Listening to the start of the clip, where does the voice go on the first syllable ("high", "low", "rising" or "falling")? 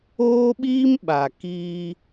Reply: high